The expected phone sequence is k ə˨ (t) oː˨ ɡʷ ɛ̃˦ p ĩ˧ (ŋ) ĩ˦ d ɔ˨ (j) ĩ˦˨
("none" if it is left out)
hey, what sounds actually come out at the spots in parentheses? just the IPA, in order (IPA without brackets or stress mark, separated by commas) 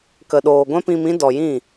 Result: ɗ, m, j